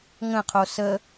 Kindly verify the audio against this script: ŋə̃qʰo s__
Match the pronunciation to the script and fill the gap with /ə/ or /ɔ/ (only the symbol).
ə